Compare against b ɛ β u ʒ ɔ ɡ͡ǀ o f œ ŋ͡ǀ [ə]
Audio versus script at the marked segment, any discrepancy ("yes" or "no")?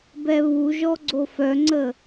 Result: no